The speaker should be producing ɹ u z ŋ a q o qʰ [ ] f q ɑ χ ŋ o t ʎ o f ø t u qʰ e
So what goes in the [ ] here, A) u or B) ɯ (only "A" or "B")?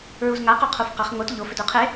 A